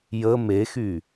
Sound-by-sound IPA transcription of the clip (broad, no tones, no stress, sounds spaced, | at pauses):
j ə m e x y